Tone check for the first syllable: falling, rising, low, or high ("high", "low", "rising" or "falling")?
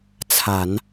low